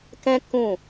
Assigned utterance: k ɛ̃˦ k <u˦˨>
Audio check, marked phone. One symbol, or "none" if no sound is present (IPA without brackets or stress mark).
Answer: ũ˦˨